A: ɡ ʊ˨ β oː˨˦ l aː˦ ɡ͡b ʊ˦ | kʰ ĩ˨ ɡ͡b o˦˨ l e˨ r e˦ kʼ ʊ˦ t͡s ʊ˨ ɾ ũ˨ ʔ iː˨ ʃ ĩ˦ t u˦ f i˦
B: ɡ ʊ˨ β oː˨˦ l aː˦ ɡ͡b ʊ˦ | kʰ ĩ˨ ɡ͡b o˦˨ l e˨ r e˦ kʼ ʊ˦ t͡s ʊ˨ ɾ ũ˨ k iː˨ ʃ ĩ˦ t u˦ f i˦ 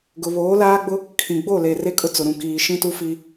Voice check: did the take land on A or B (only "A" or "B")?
B